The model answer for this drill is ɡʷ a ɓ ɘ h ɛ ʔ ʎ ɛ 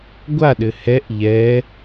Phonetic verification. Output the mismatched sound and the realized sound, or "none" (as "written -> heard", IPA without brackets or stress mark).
ɓ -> ɗ